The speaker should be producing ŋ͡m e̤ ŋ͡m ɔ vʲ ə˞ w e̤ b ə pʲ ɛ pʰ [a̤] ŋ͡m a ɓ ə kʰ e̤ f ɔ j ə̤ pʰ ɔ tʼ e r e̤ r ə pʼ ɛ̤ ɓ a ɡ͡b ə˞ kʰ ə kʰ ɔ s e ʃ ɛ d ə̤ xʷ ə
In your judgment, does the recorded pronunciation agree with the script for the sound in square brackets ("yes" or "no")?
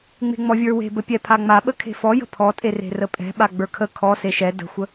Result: no